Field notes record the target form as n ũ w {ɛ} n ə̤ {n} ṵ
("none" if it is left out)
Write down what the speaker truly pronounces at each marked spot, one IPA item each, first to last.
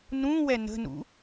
ɛ, n

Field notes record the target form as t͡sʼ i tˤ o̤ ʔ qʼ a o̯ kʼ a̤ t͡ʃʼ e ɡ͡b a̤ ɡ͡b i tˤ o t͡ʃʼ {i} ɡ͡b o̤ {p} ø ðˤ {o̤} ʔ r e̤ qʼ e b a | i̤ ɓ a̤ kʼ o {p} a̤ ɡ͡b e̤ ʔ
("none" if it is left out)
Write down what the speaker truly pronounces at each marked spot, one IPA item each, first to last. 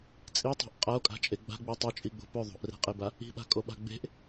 i, p, o̤, ɓ

